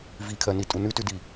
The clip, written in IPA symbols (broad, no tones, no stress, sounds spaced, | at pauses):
v i kʰ ɜ n i tʼ u n ʉ t ʉ d i